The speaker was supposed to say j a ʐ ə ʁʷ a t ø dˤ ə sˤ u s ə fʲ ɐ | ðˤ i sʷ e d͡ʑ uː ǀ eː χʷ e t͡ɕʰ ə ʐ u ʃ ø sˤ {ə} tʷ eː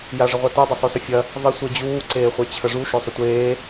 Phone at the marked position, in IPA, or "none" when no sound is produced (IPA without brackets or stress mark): ʏ